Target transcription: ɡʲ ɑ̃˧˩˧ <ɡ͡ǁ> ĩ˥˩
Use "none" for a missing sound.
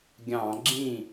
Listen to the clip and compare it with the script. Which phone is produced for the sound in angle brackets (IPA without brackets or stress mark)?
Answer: ɡ͡ǁ